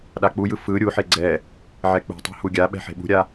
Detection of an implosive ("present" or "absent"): present